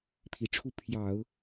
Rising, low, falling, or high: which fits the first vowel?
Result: low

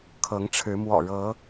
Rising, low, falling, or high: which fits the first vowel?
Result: rising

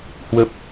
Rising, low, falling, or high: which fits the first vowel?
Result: low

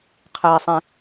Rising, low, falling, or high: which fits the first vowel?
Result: low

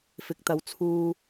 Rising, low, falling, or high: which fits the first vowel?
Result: rising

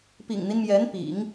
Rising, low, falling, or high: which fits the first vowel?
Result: low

